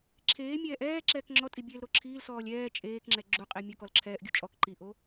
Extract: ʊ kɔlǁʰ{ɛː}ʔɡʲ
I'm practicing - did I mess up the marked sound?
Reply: no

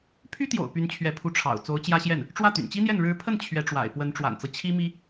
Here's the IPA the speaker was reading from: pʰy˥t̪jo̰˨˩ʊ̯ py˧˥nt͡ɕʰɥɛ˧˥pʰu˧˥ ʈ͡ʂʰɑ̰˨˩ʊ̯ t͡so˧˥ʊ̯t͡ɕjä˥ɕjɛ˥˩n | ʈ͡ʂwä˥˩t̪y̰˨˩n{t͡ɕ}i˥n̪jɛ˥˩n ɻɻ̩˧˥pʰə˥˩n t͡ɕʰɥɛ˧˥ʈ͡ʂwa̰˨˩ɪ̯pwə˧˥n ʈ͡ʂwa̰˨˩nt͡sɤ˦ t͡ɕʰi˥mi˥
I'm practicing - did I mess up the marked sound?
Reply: no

